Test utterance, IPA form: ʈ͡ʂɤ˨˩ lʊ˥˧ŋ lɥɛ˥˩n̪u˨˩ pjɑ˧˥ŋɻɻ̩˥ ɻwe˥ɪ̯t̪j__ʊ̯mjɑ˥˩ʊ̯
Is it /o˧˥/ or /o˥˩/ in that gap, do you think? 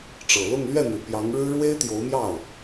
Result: o˧˥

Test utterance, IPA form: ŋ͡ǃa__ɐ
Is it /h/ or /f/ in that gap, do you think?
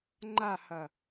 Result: h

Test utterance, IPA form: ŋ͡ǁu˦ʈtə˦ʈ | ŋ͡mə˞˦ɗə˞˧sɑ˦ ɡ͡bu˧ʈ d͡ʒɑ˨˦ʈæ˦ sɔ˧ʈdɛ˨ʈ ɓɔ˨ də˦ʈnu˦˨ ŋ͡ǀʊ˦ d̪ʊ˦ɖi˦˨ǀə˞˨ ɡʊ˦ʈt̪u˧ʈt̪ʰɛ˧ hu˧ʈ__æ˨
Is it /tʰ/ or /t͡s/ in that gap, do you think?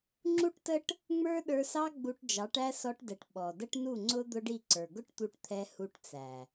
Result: t͡s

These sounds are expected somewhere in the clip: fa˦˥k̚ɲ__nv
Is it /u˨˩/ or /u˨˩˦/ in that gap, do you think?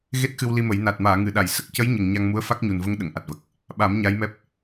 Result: u˨˩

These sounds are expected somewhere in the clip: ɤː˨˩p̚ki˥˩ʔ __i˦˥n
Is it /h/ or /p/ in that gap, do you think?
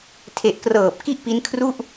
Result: p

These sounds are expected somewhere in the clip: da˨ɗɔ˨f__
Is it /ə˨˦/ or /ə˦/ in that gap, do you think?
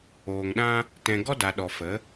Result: ə˨˦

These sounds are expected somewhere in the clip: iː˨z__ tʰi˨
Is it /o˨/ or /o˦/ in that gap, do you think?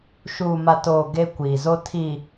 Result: o˦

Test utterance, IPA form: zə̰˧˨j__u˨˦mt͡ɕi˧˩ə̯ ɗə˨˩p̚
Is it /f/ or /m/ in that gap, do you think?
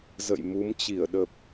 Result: m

